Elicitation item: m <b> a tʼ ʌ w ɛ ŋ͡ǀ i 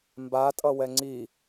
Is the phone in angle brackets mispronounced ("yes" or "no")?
no